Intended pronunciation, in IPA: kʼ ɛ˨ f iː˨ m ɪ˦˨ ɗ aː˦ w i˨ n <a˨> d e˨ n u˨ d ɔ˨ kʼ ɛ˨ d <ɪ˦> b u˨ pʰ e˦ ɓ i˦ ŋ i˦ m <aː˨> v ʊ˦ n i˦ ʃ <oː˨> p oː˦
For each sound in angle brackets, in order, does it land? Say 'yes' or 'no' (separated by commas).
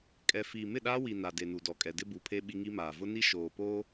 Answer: yes, yes, yes, yes